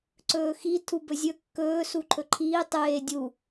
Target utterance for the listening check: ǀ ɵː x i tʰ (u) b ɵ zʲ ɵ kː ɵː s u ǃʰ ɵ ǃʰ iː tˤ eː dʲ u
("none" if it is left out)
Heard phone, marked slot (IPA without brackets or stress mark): u